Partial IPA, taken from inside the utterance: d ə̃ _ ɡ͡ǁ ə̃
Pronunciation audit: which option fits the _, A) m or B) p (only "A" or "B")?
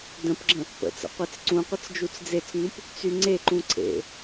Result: B